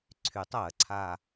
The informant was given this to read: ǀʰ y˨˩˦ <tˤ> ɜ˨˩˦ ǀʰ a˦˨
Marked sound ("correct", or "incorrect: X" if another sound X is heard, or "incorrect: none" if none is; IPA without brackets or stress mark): correct